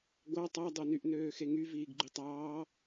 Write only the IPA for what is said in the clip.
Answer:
ɡʷ ɑ tˤ ɑ dˤ o n y ʔ n øː x e ŋ y v iː ɡ ɡ͡ǃ y tˤ ɑː

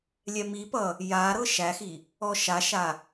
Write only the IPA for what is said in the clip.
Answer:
lʲ ɛ m i p ʌ | j a ɾ ɤ ʃ æ x i | ɔ ʃ a ʃ a

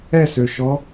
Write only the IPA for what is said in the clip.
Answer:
ɛ s ø ʃ ɔ

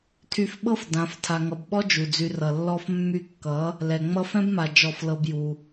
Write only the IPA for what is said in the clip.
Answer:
tʰ y˧ f ɓ ɤ˦ f d ã˨˦ f tʰ a˨ ŋ ʌ˨ b ɓ ɔ˦ d͡ʒ u˨ d͡z y˧ r ʌ˨ lː ɔ˦ f mː y˧ kː ʌ˨˦ | l ɛ˨ ŋ͡m ʌ˦ f ɛ̃˦ b m a˨ d͡ʒ ɔ˦˨ f l ɤ˦ b j u˧

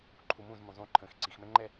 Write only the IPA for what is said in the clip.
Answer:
ǃʰ u m ũ z m ũ zˤ ũ ǃʰ ə̃ː x ǀ i x m ɛ̃ ŋ͡ǃ ɛ

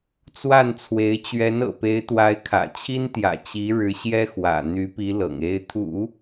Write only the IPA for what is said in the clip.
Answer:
t͡s w a˥˩ n t͡sʰ w e˧˥ ɪ̯ t͡ɕ ɥ ɛ˧˥ n ɤ̰˨˩ p e˧˥ ɪ̯ t̪ w a˧˥ ɪ̯ kʰ ä̰˨˩ t͡ɕʰ i˥ n t̪ j ä̰˨˩ t͡ɕ i˧˥ ɻ ɻ̩˧˥ ɕ j ɛ˥ x w ä̰˨˩ n̪ y˧˥ p i˧˥ l ɤ̰˨˩ ŋ e˥ ɪ̯ t̪ʰ ṵ˨˩˦

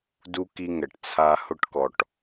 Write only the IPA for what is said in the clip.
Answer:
d u˦ k i˦ ŋ ɛ˨ ʈ t͡sʰ a˦ h ʊ˦ ʈ k ɔ˨ ʈ

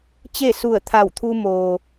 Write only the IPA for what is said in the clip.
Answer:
t͡ɕ e˥˨ s u˧˩ ə̯ t̪ʰ a˧˩ w t̪ʰ u˧ m oː˩

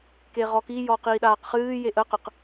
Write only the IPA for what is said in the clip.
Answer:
k e ʁ ɔ k i j ɔ q iː ɗ aː q χ ɨː j e ʔ ə q ə q

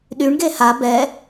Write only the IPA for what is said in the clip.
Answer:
ɗ y ɳ ɡ e h a b ɛ

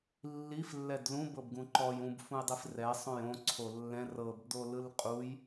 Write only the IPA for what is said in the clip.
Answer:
lː i f lː ɛ d l ũ b ɤ b ɡ ũ ǃ ɔ j ũ b f ũ j dˤ i f r ɛ sˤ õ j õ ǀʰ o lː ɛ̃ r ɤ b d o l ɯ l qʼ u j

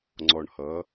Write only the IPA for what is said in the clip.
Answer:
ŋ͡ǀ ɔ˨˩ ɳ h ʌ˩˥

